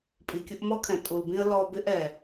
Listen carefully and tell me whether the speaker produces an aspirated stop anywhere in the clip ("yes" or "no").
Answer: yes